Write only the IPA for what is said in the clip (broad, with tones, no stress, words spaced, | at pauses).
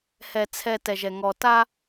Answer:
hɛ˨ t͡sʰɛ˨ tɛ˨ʒɛ˨ ŋɔ˨ta˦